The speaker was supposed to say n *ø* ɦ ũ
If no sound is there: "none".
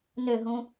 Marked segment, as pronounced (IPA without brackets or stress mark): ø